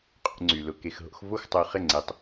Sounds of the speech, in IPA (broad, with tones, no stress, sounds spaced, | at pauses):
qʼ ṵ˧ ŋ͡ǀ y˨ l ʊ˧ k e˧ x ɦ o̰˦ x v o˦ x tˤ o˧ χ ɪ˦˨ ŋ͡ǀ e˧ tˤ